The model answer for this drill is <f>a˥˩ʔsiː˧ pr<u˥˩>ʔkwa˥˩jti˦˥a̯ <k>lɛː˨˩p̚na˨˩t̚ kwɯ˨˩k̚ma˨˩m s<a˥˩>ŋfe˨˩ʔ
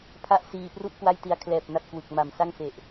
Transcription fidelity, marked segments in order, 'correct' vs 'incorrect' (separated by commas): incorrect, correct, incorrect, correct